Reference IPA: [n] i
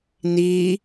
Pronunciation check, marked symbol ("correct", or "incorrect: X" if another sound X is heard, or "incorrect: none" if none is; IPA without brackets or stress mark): correct